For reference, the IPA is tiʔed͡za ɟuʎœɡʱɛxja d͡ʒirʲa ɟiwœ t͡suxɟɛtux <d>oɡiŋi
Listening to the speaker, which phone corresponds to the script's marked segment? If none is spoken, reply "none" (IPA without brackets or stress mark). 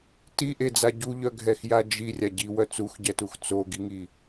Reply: t͡s